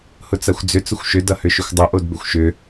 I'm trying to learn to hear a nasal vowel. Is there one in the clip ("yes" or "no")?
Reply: no